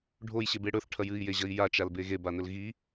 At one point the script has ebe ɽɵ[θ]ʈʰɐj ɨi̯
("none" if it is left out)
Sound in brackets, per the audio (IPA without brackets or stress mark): θ